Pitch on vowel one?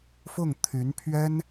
falling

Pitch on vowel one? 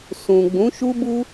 low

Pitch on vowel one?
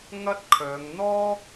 high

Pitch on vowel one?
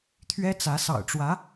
high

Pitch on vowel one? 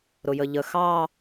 low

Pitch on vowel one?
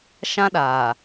high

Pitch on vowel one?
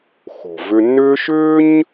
low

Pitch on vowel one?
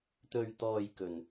low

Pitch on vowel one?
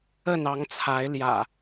falling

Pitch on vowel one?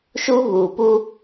high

